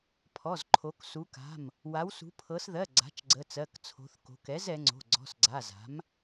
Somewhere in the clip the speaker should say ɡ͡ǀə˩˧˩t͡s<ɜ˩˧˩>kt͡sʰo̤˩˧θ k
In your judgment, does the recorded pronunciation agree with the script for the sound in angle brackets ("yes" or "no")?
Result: yes